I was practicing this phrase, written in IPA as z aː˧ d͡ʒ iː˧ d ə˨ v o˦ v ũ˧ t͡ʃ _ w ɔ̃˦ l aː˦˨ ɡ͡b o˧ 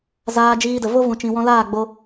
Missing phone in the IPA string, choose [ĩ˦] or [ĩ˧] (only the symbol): ĩ˧